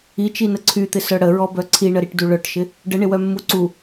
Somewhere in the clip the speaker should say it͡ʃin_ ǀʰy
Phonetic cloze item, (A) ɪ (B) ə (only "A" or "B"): B